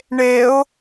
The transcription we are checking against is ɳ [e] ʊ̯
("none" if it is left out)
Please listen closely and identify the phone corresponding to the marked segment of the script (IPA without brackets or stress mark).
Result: e